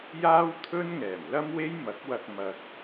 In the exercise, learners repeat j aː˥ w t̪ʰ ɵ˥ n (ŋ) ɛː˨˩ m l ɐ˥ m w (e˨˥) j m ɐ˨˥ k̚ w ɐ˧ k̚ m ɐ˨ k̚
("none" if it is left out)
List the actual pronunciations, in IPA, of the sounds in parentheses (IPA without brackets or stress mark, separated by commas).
ŋ, e˥